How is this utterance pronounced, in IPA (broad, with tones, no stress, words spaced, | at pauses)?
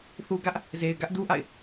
θu˨ɡä˦ʔ | ze˨ɪ̯ ɡä˦ʔdu˦ʔa̰˦˨ɪ̯